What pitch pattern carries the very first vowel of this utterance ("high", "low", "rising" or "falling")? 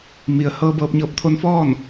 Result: low